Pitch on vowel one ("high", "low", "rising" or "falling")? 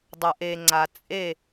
low